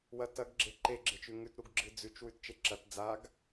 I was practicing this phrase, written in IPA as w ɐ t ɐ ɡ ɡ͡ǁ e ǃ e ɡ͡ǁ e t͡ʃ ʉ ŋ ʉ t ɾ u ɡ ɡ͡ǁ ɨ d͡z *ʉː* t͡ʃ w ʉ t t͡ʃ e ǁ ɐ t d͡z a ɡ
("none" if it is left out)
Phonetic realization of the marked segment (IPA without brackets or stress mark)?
ʉ